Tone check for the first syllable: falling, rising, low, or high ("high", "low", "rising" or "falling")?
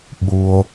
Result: low